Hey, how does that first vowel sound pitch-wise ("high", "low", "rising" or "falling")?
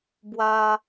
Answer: high